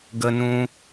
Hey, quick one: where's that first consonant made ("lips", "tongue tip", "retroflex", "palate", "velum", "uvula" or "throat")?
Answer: velum